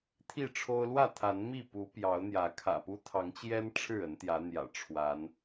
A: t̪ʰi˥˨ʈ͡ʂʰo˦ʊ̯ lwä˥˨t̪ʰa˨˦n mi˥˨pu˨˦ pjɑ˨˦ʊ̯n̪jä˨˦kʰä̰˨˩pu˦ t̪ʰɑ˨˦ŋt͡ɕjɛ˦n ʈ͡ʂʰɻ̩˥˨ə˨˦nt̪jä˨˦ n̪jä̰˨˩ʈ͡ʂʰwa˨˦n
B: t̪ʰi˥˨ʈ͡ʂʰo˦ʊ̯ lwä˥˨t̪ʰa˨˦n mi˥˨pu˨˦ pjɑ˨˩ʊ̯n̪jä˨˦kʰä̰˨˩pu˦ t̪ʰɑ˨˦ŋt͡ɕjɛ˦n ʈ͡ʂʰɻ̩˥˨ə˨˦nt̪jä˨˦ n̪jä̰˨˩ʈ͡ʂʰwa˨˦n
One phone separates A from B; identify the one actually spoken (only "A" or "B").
A